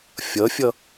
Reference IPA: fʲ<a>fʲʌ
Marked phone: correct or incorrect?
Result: incorrect